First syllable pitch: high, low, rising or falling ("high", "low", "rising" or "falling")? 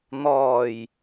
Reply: low